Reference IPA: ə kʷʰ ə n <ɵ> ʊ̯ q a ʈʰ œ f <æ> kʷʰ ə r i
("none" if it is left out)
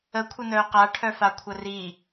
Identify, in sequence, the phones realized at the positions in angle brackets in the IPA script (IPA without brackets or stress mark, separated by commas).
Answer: œ, a